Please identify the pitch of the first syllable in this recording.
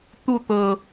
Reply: falling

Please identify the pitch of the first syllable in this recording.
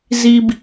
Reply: low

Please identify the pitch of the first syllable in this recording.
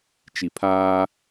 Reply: low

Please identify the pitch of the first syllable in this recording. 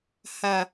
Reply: low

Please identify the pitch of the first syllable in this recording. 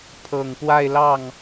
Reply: low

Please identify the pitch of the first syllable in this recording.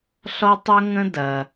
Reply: high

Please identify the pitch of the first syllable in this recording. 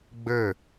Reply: falling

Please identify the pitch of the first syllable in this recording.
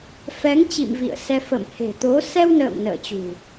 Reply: rising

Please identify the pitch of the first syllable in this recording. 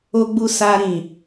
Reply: high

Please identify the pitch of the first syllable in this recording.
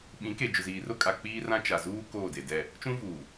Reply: rising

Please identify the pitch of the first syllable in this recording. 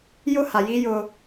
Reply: high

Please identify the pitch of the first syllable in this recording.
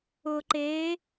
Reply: low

